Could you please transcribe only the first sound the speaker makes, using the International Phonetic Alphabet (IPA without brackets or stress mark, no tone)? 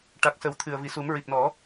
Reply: ʈ